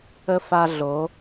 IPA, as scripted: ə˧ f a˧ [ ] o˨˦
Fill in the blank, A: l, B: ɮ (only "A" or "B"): B